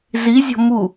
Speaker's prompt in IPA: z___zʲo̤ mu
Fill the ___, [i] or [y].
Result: i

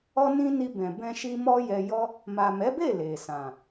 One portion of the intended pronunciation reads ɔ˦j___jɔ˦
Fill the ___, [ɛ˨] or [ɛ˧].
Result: ɛ˧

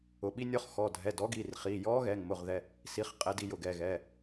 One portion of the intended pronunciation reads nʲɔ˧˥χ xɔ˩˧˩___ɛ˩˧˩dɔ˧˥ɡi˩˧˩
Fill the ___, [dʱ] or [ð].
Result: dʱ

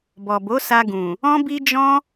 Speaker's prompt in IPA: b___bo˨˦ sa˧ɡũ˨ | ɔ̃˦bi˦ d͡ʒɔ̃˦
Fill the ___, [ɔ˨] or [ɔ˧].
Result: ɔ˨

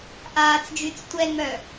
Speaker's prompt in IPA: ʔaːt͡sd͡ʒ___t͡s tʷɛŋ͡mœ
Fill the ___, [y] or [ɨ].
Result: y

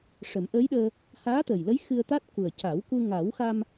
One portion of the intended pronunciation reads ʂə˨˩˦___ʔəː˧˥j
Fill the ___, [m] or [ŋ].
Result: m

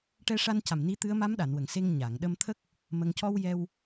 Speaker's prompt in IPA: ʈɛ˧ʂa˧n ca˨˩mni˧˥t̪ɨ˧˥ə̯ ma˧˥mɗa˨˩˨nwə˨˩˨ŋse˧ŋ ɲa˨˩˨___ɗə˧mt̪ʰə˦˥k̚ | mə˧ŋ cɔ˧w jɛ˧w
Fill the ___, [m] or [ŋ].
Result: ŋ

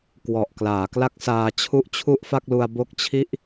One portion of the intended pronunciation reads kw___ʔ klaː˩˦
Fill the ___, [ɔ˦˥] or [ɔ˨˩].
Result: ɔ˨˩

